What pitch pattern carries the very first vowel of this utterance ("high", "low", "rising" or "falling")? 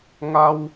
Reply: high